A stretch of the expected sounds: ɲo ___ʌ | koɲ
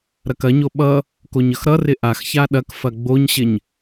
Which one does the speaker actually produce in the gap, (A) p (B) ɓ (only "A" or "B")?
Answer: B